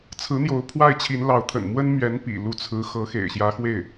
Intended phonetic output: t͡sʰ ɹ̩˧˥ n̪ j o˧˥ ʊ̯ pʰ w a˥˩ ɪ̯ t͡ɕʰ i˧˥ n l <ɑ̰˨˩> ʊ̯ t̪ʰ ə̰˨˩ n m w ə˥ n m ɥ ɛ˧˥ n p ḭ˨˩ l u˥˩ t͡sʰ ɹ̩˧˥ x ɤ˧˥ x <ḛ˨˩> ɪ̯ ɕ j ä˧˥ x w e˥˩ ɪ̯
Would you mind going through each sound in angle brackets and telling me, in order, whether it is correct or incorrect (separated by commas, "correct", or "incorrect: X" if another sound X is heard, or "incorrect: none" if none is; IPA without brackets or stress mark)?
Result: incorrect: ɑ˧˥, correct